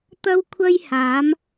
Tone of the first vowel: high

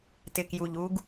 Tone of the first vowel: low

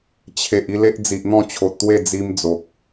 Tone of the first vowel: low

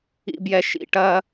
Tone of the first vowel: low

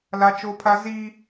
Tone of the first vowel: high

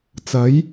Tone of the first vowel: rising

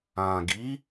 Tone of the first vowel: low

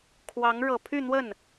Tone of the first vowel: rising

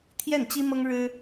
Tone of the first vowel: falling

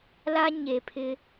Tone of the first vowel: high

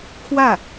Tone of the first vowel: falling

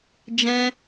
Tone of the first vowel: high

